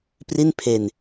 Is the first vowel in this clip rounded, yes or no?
no